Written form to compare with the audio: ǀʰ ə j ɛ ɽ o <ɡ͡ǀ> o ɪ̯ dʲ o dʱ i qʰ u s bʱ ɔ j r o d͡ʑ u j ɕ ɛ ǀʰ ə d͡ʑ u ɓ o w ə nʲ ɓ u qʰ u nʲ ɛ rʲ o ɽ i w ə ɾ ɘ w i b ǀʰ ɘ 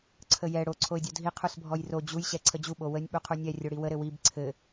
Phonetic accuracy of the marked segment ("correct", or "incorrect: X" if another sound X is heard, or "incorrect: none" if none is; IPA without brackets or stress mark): incorrect: ǀʰ